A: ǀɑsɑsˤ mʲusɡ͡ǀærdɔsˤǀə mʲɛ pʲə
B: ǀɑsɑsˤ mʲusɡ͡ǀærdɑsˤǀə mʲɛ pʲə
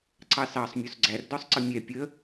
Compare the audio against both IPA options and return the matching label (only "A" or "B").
A